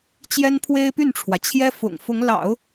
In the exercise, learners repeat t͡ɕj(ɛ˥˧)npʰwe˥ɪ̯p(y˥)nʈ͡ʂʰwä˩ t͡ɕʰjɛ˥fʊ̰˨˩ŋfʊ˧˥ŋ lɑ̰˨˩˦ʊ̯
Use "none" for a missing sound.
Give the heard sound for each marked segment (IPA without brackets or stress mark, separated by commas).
ɛ˥, y˥˩